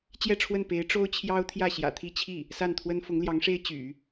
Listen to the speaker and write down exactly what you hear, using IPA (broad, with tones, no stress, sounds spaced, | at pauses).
t͡ɕ j ɛ˥˧ ʈ͡ʂʰ w ə˥˩ n p e˧˥ ɪ̯ ʈ͡ʂ o˥ ʊ̯ t͡ɕʰ j ɑ˥ ʊ̯ t̪ʰ j ä˥˩ ɕ j ä̰˨˩ t̪ʰ i˥˧ t͡ɕʰ i˥˩ | s a˥˩ n t̪ʰ w ə˥ n f ʊ˧˥ ŋ l j ɑ˧˥ ŋ ʂ e˥ ɪ̯ t͡ɕ y̰˨˩˦